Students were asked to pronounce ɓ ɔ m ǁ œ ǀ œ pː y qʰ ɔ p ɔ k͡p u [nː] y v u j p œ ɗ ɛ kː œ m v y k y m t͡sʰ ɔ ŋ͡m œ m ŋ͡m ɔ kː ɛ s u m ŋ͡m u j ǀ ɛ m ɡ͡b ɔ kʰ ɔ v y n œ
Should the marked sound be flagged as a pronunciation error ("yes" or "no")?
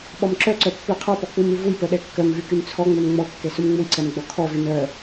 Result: yes